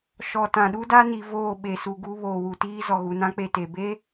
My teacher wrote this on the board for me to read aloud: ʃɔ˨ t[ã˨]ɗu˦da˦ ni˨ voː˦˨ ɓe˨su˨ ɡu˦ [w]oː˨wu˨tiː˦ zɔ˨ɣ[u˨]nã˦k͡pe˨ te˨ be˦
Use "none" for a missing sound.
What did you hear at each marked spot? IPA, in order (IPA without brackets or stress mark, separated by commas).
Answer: ã˨, β, u˨